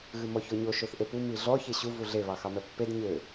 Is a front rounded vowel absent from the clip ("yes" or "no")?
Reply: no